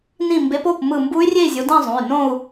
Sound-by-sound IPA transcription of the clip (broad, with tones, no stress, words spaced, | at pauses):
nĩ˧˩mbe˨˦po˩˧˩p mɯ˧˩ mbu˦˥y̯rʲe˥˧i̯zʲo˨˦ dĩ˥˧zˤũ˩˧˩y̯ nõ˥˧u̯